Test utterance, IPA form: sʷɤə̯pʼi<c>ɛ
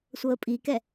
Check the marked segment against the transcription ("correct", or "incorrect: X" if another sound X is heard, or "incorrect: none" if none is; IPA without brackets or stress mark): incorrect: k